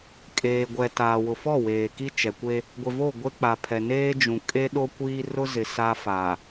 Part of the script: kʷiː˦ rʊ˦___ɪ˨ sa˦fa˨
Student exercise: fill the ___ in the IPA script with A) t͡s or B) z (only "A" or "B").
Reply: B